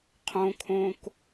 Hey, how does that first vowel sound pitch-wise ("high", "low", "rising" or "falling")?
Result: low